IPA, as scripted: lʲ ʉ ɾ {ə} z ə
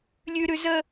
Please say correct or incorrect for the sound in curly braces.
incorrect